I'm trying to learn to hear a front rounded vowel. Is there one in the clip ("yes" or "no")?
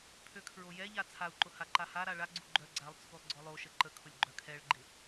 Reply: yes